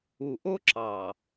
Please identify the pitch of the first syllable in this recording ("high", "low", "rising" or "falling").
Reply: low